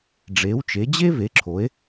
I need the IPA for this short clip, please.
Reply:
ɖ͡ʐ e˨˥ w t͡ʃ e˨˥ d͡ʑ e˥ v e˨˥ ǁʰ o˨˥ e̯

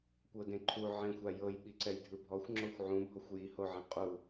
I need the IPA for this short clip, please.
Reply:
kʷ ɤ d ẽ ǃʰ u ʕ ẽ xʷ a j ɤ j ɓ i ǀ ɛ j dʱ ɯ bʱ ɔ xʷ ŋ͡ǁ o xʷ ʕ ũ bʱ ɔ xʷ j i h o ʕ ɛ̃ qʼ u

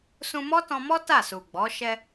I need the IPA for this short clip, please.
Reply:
s ũ˧ m ɔ˦ t ɔ̃˧ m ɔ˦ t a˦˨ s u˨ ɡ͡b ɔ˨˦ ʃ ɛ˧

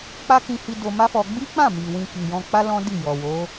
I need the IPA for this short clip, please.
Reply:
k͡p a˦ k ĩ˧ h i˧ d o˧ m a˦ f ɔ˧ ɡ͡b i˦ k͡p ã˦˨ m i˨ w ĩ˧ k i˨ j ɔ̃˧ k͡p a˦ l ɔ̃˦ d i˦˨ j ɔ˨ w o˨˦

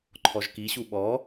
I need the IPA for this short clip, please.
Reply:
ǃʰ ɔ ʒ k i ɕ u ɓ ɔ

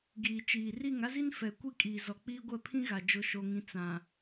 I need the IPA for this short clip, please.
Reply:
ɡ iː˨ t͡ʃ iː˨ r i˦˨ ŋ a˦ z i˦ n f ɛ˨ kʷ i˦ kʼ iː˨ z ɔ˨ k͡p iː˦ ɡʷ ɛ˦˨ pʰ ĩ˦ ɣ a˨ d͡ʒ ʊ˨ ʃ o˨ ŋ ĩ˨ t͡s ã˨

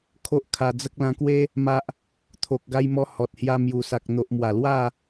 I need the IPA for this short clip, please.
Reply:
kʰ o˦ ʔ kʰ a˧ d͡z ə˦ k̚ l ã˧ k w e˦ | m a˦ ʔ | t̪ʰ o˨ k̚ ɡ a˧ j m ɔ˧ h ɔ˨ t̚ h j a˧ m j u˨˩ s a˨ k̚ n̪ o˨ ʔ m w a˨˩ l w a˥˧

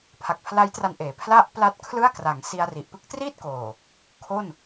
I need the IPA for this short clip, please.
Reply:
pʰ a˨˩ k̚ pʰ l a˦˥ j t r a˧ n ʔ eː˩˦ pʰ l a˥˩ ʔ p l a˦˥ t̚ kʰ l ɯ˥˩ a̯ k r a˩˦ ŋ s i˧ a̯ r i˨˩ ʔ p ɯ˦˥ k̚ t r iː˥˩ t̚ k oː˨˩ | kʰ o˥˩ n

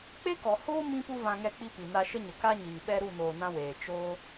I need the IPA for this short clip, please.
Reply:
k͡p e˦ k ɔ˨ h oː˦ m ĩ˦ p u˦ v ã˧ ŋ ɛ˧ k͡p i˧ p i˨ n a˧ ʃ ə˦ ɲ ə˨ k a˦ ɲ iː˨ ɓ ɛ˦ ɾ u˦˨ n oː˨ n ã˧ w eː˨ t͡ʃ oː˦

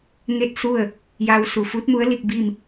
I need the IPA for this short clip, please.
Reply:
ŋ e˥˨ t̚ s u˥˨ ə̯ | j a˧ w s u˧˩ f u˧˥ t̚ m u˧˥ ə̯ l i˥˨ k̚ b i˥˨ m

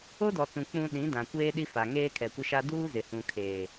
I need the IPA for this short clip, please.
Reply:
o˦ d ɔ˨ t͡s ũ˨ k͡p ũ˨ ɗ ĩ˨˦ d ã˨ kʷ eː˦ ɗ i˦ f a˨ ŋ eː˦ kʰ ɛ˨ kʷ ɪ˦ ʃ a˦ d uː˦ z ɪ˨ h ũ˨ kʰ eː˨

